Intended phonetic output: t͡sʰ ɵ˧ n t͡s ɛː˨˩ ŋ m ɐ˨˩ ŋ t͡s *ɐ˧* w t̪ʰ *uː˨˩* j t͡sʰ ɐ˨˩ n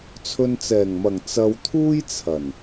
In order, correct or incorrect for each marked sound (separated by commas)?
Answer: correct, incorrect